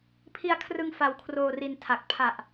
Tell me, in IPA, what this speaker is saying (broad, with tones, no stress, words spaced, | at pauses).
pʰi˧a̯kʰrɯ˧ŋ fa˧wkʰroː˧ri˧n tʰa˨˩k̚ pʰa˨˩ʔ